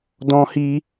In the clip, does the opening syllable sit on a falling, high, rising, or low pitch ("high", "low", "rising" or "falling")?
high